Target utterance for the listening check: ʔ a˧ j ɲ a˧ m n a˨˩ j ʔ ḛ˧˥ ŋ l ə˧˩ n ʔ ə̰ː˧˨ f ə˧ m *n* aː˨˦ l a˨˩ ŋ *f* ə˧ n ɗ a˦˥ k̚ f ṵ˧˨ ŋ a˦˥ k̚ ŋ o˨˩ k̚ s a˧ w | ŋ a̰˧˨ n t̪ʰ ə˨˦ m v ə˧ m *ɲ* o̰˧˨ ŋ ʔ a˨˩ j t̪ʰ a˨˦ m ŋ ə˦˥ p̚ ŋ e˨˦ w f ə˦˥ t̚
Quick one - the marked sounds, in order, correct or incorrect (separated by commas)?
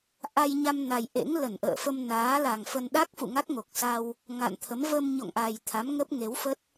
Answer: correct, correct, correct